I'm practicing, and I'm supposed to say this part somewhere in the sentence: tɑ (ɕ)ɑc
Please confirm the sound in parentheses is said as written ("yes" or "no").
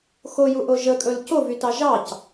no